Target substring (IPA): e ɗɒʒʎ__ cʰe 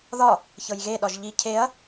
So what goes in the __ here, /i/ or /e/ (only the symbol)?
i